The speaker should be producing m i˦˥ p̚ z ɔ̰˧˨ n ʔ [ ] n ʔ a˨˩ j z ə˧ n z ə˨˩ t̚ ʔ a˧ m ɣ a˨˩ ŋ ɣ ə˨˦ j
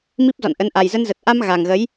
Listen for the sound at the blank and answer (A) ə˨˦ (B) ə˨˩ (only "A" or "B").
A